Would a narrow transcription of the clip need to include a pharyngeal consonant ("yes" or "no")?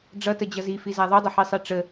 yes